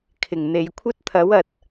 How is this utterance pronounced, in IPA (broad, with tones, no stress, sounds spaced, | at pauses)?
kʰ ɪ˨˩ ŋ n̪ e˨ j kʷʰ ɐ˥ t̚ t̪ʰ ɐ˨˥ w ɐ˨ t̚